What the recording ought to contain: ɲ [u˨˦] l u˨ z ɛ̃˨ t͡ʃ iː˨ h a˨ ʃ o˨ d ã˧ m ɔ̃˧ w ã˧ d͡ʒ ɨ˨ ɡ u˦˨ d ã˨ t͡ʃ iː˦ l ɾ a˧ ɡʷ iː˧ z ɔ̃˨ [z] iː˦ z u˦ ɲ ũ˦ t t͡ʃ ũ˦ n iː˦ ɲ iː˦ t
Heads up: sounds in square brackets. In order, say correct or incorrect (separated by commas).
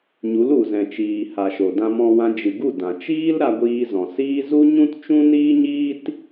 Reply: correct, incorrect